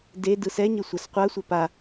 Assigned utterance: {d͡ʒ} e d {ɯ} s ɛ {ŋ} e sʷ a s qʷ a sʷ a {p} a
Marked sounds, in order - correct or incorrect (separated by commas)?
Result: incorrect, correct, incorrect, correct